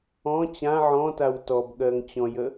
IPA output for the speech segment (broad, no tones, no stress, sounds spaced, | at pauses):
ɔ̃ t͡ɕ ã ʕ ɔ̃ t a w t ɔ b ɠ ɜ ŋ t͡ɕ ɔ̃ j ə